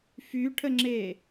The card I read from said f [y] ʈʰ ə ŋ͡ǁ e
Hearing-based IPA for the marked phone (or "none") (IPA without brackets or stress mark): y